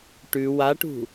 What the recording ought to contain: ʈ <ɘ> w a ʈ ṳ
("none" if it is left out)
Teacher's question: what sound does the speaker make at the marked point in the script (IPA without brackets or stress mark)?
ʉ